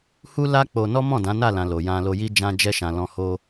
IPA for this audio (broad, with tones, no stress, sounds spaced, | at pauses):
h u˦ l a˦ k͡p o˧ n ɔ˦ m ɔ̃˦˨ d ã˨˦ n a˦˨ l ã˨ l o˨ j ã˧ l o˧ j i˦ d͡ʒ ã˧ d͡ʒ ɛ˧ ʃ ã˨ l ɔ̃˧ h o˦